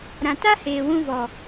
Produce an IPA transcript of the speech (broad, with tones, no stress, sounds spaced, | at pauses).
ɾ ã˨ t a˦ h eː˨ w ũ˧ v ɔ˨